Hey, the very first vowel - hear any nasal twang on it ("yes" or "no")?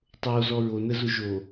no